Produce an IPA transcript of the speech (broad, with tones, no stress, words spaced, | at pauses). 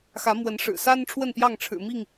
xä˨˦ mwə˨˦nʂɻ̩˨˩sa˦n ʈ͡ʂʰwə˥˨npjɑ˥˨ŋʈ͡ʂʰɻ̩˨˩mi˥˨ŋ